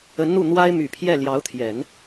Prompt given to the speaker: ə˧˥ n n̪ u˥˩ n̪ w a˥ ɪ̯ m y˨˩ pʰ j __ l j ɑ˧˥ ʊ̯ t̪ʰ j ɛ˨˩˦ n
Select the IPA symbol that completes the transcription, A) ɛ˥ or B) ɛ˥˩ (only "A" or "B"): B